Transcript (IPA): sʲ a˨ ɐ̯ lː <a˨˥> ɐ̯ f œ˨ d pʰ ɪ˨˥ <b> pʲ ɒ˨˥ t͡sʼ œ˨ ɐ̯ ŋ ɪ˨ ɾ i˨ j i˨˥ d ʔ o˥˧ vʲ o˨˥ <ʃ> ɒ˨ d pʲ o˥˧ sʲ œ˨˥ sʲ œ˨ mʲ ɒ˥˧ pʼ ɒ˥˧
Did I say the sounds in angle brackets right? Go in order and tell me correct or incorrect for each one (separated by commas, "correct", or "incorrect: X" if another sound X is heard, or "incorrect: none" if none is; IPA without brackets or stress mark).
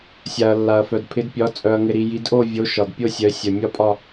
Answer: incorrect: a˨, incorrect: d, correct